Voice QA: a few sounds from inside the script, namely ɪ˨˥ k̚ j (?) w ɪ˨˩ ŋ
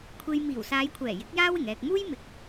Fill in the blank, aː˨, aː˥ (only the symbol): aː˥